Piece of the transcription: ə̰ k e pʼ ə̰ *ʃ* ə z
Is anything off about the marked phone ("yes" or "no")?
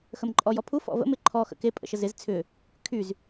no